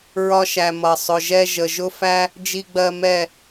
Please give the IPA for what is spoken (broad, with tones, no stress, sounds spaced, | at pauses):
ɹ ɒ˧ ʃ æ˨ m ʌ˨ sˤ ʊ˨ ʒ ɛ˧ ʒ ə˨ ʒ ʊ˦ f æ˦ | d͡ʒ i˧ ɡ͡b ɜ˧ m ɛ˦˨